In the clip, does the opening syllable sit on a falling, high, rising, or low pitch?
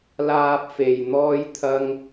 high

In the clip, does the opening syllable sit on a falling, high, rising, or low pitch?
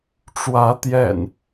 rising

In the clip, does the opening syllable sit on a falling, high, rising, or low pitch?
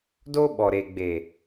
high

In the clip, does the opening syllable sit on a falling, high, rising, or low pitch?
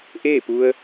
falling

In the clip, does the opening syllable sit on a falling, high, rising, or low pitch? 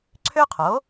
high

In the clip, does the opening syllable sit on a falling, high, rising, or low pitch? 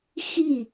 falling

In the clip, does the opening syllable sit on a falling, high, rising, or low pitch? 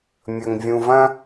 low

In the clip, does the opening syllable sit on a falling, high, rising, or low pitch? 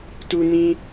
high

